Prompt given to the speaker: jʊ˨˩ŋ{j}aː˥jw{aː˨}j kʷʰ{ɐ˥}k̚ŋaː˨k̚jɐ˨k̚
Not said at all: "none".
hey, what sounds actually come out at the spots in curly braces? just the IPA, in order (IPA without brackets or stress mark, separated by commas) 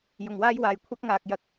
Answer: w, aː˨˩, ɐ˥